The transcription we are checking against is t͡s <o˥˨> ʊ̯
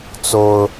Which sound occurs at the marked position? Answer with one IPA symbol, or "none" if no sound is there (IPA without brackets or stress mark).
o˦